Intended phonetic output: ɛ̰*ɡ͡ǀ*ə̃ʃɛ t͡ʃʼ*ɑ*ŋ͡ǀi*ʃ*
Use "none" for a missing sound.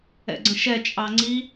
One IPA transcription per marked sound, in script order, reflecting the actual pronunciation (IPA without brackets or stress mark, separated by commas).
ɡ͡ǀ, ɑ, none